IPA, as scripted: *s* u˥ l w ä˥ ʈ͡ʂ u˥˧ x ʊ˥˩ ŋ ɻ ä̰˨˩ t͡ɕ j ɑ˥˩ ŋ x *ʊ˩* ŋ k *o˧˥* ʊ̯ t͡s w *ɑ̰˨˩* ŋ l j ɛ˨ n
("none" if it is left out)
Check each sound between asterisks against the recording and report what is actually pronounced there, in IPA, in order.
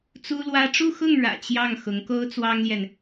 t͡s, ʊ˧˥, o˥, ɑ˥

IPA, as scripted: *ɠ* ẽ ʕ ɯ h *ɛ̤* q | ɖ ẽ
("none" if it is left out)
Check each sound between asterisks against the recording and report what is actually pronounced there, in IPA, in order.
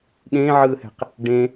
ɠ, ɛ̤

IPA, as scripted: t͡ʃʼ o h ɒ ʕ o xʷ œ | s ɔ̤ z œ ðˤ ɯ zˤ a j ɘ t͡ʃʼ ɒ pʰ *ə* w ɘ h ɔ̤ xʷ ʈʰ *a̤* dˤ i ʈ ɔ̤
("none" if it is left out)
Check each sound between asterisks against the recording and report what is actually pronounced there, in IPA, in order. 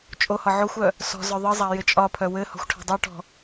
œ, a̤

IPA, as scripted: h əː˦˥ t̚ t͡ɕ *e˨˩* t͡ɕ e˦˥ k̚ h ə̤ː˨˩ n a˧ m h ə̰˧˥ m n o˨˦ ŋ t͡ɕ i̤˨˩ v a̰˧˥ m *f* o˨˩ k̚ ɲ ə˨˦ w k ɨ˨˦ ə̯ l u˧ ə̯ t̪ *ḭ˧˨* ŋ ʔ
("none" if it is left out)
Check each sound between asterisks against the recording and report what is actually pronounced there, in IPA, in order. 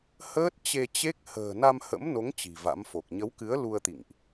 e˧, f, ḭ˧˨

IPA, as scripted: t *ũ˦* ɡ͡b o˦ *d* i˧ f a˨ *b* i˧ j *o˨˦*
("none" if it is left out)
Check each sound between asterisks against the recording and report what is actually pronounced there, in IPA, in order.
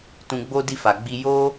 ũ˧, d, ɡ͡b, o˦

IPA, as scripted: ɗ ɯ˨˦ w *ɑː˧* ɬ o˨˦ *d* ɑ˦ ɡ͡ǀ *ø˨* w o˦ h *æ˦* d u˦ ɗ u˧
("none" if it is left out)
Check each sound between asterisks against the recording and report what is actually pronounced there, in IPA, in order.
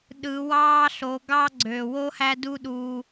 ɑː˦, ɡ, ø˨, æ˦

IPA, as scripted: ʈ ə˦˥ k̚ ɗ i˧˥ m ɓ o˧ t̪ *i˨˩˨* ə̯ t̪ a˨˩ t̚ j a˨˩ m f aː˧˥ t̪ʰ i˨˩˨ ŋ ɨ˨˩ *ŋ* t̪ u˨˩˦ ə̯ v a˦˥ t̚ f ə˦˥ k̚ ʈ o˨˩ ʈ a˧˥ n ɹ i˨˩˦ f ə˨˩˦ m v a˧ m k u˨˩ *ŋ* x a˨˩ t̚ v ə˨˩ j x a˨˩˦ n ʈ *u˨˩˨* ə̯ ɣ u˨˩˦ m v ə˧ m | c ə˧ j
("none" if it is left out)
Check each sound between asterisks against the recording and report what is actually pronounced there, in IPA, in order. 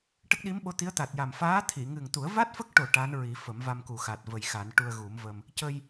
i˧˥, ŋ, none, u˧

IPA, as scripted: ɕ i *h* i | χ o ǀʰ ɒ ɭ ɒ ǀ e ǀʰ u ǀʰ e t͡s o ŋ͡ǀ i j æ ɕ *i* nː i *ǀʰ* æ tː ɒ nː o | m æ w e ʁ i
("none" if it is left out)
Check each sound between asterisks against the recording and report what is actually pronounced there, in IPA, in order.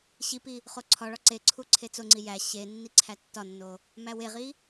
p, e, ǀʰ

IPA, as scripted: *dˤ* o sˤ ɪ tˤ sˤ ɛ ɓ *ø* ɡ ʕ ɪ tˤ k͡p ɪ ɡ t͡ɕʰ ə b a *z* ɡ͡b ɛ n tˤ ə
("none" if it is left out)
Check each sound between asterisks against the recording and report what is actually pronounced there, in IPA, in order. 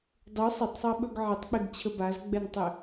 dˤ, ɵ, z

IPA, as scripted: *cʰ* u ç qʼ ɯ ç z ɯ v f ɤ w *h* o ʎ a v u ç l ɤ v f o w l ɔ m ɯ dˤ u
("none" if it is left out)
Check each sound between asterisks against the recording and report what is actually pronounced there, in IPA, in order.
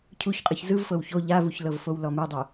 cʰ, ç

